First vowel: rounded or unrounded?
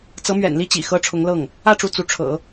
unrounded